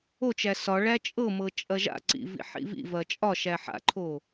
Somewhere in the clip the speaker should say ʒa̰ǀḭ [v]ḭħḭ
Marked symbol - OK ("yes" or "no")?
yes